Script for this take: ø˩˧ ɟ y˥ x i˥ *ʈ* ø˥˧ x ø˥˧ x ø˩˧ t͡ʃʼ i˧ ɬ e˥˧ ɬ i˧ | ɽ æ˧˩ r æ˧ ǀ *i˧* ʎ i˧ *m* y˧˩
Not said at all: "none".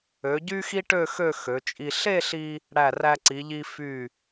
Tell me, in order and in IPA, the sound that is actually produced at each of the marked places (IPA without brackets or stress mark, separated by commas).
ʈ, i˩˧, f